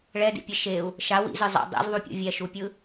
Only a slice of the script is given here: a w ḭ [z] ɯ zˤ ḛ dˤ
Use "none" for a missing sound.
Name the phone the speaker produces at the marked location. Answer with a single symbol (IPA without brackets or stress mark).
z